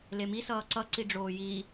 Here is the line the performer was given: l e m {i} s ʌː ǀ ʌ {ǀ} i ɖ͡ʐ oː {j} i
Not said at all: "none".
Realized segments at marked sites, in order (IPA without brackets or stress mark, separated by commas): i, ǀ, j